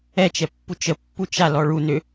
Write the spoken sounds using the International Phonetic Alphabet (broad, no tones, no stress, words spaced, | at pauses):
ɛt͡ʃɛ pːut͡ʃəpːu t͡ʃalɔ ɭu nʏ